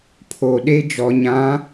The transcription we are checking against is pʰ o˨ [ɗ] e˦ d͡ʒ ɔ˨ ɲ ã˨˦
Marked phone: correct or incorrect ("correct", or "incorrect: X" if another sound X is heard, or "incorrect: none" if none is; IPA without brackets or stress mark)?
correct